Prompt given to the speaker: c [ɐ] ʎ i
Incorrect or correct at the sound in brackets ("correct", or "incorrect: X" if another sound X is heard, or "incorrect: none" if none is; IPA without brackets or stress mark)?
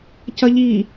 correct